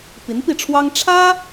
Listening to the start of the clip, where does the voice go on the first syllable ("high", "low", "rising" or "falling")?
rising